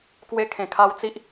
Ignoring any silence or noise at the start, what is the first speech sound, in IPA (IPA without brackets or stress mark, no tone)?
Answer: k